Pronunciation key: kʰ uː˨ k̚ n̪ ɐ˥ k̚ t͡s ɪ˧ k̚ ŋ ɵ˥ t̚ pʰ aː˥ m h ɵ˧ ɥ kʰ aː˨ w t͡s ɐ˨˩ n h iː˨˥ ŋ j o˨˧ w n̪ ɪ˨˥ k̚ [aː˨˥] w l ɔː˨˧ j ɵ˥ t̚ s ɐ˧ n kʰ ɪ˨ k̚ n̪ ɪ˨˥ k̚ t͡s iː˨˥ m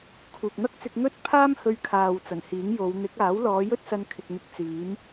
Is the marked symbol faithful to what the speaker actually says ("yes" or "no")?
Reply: yes